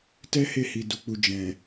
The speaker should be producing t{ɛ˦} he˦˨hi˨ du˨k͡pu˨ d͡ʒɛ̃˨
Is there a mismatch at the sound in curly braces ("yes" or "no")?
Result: no